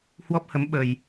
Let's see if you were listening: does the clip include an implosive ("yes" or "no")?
yes